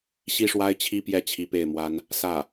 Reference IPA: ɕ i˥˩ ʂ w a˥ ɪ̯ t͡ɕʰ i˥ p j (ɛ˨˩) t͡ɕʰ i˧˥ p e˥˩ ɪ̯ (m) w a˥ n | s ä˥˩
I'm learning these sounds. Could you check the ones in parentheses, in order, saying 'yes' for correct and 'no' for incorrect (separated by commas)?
no, yes